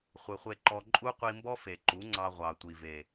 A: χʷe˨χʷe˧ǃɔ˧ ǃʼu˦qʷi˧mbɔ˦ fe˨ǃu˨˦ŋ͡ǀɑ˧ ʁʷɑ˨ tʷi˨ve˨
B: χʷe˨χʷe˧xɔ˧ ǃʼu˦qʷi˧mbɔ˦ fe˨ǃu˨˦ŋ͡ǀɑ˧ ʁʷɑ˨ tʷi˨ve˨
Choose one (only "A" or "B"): A